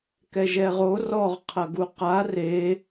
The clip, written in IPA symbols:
k ɛ ʒ ɛ ʁ o r ɔ ʁ qʰ ɐ ɡ u q a r e

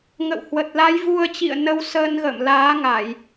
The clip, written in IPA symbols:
ŋ ə̰˧˨ w h w ə˨˩ t̚ l a˨˦ j v u˧ ə̯ t͡ɕ ḭ˧˨ ə̯ n ə˧ w s əː˧ n ɣ ə̰ː˧˨ m l aː˨˦ ŋ a˧˩˨ j

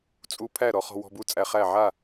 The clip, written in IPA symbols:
t͡sʼ u˧ pʰ æ˥˩ ɾ ɔ˧ χ ɔ̤˧ w ɔ̤˧ b u˥˩ t͡sʼ æ˧ χ æ˥˩ ʕ a˥˩

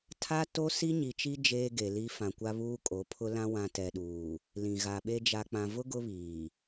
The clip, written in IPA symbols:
tʰ a˦ t o˦ s i˦ ɲ i˨ t͡ʃ i˦ d͡ʒ eː˦ ɡ e˨ l i˦ f ã˨ kʷ a˦ β uː˦ kʼ o˨˦ pʰ ʊ˦ l ã˦ w ã˦ t ɛ˨ ɗ uː˨ | l ĩ˨ ɣ a˨ ɓ e˦ d͡ʒ a˨ k͡p ã˨ v ʊ˦ ɡ ʊ˦ β iː˨

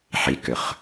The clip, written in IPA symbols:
ħ i k ʏ χ

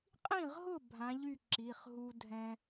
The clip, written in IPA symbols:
qʼ ĩ˥˨ ʁ ɦ ʊ˥˨ bʱ ã˨˦ ʎ y˥˨ ǁ i˩˧˩ χ ɦ u˦ dʱ ɛ̃˦

